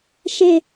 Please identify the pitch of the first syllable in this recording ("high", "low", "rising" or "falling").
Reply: high